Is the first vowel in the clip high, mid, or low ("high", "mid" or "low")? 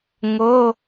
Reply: mid